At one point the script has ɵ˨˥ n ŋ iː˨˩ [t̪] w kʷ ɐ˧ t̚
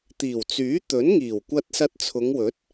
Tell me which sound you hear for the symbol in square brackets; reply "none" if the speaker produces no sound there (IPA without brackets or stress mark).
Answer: none